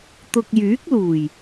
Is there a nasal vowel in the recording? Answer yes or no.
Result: no